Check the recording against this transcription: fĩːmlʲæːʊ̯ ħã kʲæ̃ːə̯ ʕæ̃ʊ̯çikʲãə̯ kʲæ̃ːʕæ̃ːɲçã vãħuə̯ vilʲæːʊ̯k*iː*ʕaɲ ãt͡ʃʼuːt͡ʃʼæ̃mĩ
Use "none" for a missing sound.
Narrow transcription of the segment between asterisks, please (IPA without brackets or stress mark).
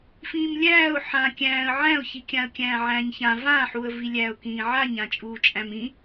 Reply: ĩː